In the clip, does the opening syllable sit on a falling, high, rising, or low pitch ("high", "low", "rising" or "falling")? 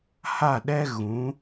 falling